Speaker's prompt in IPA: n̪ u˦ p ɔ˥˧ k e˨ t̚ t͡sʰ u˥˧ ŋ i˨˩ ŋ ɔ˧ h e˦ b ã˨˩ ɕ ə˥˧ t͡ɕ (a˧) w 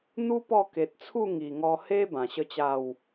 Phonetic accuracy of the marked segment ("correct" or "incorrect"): incorrect